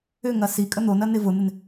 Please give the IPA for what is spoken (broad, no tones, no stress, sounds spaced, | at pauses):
ʏ ŋ ɐ s i kʼ ə n̪ o n ɐ n ɪ v ʊ n̪ ɪ n